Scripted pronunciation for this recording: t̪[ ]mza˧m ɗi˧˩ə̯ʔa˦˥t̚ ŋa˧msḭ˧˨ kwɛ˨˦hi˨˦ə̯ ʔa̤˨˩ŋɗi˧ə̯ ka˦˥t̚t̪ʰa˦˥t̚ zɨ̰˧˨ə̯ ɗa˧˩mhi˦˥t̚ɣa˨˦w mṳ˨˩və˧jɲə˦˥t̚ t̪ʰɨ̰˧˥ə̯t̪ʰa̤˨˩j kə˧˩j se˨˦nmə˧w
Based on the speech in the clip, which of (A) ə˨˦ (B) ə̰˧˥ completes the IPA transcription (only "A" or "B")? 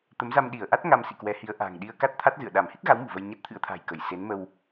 A